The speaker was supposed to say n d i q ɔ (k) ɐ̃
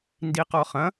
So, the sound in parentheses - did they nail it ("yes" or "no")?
no